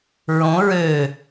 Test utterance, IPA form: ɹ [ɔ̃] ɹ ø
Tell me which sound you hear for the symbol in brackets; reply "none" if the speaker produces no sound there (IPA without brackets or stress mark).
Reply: õ